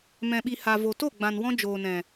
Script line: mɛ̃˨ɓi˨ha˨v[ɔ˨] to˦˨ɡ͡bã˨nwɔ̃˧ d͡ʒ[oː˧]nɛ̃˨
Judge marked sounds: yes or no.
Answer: no, no

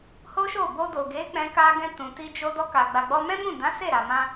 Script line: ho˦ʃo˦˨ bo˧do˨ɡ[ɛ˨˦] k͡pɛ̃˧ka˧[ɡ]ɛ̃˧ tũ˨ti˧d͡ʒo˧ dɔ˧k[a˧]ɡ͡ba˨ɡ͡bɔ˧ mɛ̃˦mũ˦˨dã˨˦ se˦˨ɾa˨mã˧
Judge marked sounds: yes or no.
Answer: no, yes, no

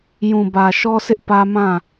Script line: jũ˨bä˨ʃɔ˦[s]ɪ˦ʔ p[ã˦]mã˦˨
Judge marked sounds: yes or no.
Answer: yes, no

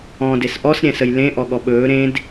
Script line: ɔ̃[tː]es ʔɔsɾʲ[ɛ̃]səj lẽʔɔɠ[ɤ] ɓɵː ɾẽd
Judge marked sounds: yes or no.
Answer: no, yes, no

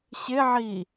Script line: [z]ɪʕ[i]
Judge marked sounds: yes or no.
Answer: no, yes

